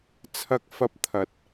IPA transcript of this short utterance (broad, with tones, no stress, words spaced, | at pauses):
t͡sʰɐ˥k̚fɐ˥p̚ t̪ʰɐ˥t̚